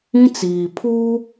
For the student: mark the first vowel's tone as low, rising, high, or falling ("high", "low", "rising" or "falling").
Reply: high